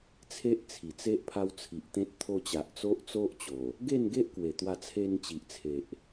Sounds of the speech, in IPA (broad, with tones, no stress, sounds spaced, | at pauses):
t͡sʰ e˦ ʔ t͡sʰ i˨˩ t͡s e˦ ʔ pʰ a˦ w t͡sʰ i˨ ʔ t̪ ẽ˦ t̚ t̪ʰ o˧ t͡ɕ a˨ ʔ t͡s o˦ ʔ t͡s o˦ ʔ t͡ɕ o˨˩ | ɡ e˥˧ n ɡ e˦ ʔ k w e˨˩ t̪ w a˧ t͡sʰ e˧ n t͡ɕ i˨ ʔ t͡sʰ e˨ ʔ